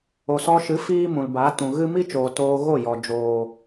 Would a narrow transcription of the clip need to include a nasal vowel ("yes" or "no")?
yes